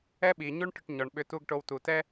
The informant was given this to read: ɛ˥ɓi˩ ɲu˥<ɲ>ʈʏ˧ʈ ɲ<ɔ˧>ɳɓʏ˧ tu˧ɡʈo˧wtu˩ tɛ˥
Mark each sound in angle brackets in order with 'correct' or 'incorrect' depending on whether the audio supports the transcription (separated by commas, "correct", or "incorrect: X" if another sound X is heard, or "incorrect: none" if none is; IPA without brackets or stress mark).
incorrect: ɳ, incorrect: ɔ˩